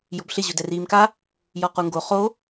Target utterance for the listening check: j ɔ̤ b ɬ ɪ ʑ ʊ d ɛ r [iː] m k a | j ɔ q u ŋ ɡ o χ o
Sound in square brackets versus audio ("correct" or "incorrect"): correct